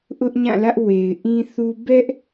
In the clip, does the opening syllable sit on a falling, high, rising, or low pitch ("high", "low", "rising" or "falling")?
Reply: high